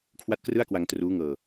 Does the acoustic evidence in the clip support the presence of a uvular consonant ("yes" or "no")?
no